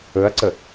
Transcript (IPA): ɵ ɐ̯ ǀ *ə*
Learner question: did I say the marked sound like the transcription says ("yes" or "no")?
yes